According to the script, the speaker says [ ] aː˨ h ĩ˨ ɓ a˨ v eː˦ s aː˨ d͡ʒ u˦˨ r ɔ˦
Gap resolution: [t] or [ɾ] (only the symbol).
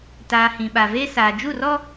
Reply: t